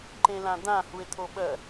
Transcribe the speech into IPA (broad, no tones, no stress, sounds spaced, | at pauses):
ǃ ẽ l ã d̪ ã h u e̯ t̪ʰ o ɓ ɜ